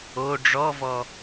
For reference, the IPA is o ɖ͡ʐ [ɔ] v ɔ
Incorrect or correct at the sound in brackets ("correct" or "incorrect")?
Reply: correct